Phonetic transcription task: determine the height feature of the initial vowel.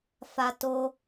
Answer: low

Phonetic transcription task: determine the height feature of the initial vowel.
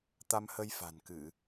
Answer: low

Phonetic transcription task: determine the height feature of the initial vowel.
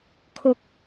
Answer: high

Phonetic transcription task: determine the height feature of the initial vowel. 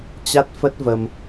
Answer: low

